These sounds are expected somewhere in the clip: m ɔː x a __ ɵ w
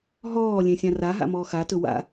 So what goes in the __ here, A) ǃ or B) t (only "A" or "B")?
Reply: B